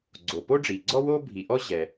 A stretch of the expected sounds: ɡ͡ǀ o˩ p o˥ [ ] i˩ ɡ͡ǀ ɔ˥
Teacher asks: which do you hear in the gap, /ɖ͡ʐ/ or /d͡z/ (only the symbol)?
ɖ͡ʐ